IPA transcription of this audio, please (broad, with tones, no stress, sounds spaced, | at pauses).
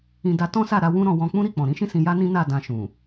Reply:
ĩ˧ d a˧ t ɔ̃˦ s a˦˨ ɾ a˧ w ũ˦ ɾ ɔ̃˧ w ɔ̃˧ k͡p ũ˦ ɾ i˦˨ k͡p ɔ̃˨ ɾ ĩ˨˦ ʃ ĩ˦˨ s ĩ˧ j a˦ n ĩ˦ n a˦˨ d ã˧ ʃ ũ˨